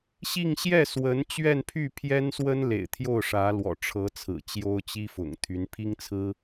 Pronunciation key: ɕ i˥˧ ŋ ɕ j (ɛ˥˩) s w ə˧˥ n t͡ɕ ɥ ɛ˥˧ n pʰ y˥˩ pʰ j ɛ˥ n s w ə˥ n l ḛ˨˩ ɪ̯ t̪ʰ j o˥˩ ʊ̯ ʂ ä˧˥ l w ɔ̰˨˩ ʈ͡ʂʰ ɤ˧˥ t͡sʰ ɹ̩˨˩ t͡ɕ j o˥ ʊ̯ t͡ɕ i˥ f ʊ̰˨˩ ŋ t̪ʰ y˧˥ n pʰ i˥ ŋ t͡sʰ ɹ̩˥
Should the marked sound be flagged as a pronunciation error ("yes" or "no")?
no